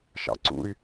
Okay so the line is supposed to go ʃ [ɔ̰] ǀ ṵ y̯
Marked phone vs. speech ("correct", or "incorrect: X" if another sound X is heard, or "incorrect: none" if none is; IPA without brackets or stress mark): incorrect: ɑ̰